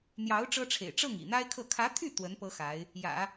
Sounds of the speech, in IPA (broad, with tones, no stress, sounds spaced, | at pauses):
n̪ j ɑ˧˥ ʊ̯ ʈ͡ʂ ɤ˥ ʈ͡ʂʰ ḛ˨˩ ɪ̯ ʈ͡ʂ ɤ˥˩ ŋ ḭ˨˩ n̪ a˥ ɪ̯ kʰ ɤ˥˩ kʰ ä˧˥ t̪ʰ y˥˩ t̪ w ə˧˥ n p ɤ˥ x a˧˥ ɪ̯ | j ä̰˨˩˦